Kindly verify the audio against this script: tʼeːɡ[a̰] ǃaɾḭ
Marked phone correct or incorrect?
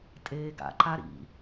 correct